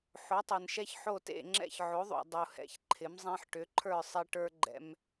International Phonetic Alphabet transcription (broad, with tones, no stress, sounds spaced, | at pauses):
ħ o˨˥ tˤ ə˞˨ n ʃ ɛ˦ ç ħ o˥˨ t ḛ˥˨ ŋ͡ǁ ɛ̰˦ ç ʕ o˨˥ ðˤ ṵ˨ dˤ u˨ h ɛ̰˨˥ ç ǃʰ ɪ˨˥ m zˤ ẽ˦ ħ ʈ ʏ˨˥ ǃʰ ə˞˥˨ sˤ e˦ ʈ ə˞˦ ɡ͡ǃ ɛ̰˦ m